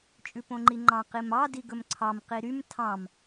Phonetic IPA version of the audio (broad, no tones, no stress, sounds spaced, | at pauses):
t͡ʃʼ ʉ p õ ŋ͡ǃ i ŋ͡ǃ ɑ̃ q i m ɑ d i ɡ ɵ m ǀʰ ɑ m q i ɾ y m tʰ ɑ̃ m